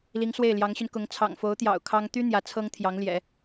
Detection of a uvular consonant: absent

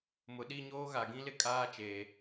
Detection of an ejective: present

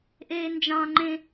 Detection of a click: present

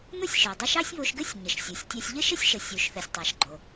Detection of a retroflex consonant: absent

